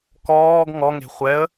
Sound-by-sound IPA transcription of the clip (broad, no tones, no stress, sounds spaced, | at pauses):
k ɔː ɡ ŋ ɔ ŋ e̤ χʷ ɛ ə̯